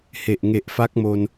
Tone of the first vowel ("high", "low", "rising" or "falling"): low